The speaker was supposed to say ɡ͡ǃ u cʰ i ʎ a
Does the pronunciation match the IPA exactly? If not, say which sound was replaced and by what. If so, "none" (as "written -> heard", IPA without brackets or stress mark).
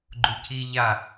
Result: none